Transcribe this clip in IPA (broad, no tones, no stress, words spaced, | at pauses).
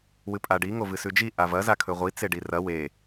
wɨpʼaɖi ŋovɨsʉd͡ʒi ʔavɐ zakʰɵʁʷi t͡seɖirɐ we